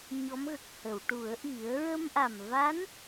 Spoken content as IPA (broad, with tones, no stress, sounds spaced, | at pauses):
ɲ ɔ˧˥ m ɣ ə˨˩ k̚ h ə˨˩˨ w ʈ u˨˩˦ ə̯ ʔ i˨˩˦ ə̯ ɹ ə˧ m ʔ a˨˩ m v a˧˥ n